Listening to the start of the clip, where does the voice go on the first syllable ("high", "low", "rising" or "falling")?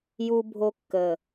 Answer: high